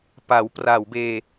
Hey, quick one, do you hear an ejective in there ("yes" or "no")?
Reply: no